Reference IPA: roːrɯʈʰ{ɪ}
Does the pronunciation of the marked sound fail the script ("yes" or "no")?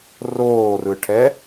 yes